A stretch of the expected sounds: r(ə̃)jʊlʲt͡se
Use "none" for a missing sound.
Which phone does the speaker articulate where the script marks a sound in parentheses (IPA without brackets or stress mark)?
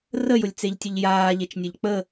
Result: ə